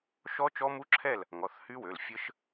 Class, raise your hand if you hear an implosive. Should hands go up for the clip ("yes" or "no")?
no